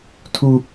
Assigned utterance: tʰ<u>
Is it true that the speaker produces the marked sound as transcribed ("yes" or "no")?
yes